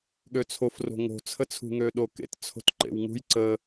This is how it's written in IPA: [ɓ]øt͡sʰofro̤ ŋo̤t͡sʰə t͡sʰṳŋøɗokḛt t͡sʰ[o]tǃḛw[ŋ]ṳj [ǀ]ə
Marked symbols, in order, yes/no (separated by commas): no, no, yes, yes